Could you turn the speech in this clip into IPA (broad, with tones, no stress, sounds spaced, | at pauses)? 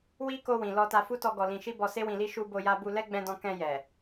w i˦ k o˧ w ĩ˨ l ɔ˧ t a˧ f u˦ t ɔ˧ ɡ ɔ˨ l ĩ˨ ʃ i˧ b ɔ˧ s e˦ w ĩ˧ l i˦ ʃ u˧ b o˧ j a˧ b u˧ l ɛ˦ ɡ͡b ɛ̃˧ d ɔ̃˧ k ɛ̃˧ j ɛ˨